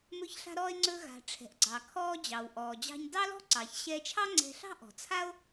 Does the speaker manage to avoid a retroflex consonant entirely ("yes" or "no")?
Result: no